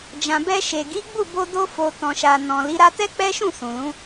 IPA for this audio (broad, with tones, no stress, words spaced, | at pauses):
d͡ʒã˨bɛ˧ʃe˨ ɡi˨˦ɡ͡bu˦˨bo˧ do˧fo˨ tɔ̃˨ʃa˨ nɔ̃˨ li˨˦ɾa˦ tɛ˦k͡pɛ˦ʃũ˦˨ sũ˨lũ˨˦